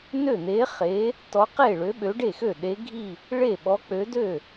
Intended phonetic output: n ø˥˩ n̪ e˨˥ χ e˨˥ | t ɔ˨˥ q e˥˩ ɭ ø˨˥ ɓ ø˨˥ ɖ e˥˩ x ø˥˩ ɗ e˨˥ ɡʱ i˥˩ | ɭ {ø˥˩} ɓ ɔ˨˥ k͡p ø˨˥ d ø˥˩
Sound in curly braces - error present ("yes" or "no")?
yes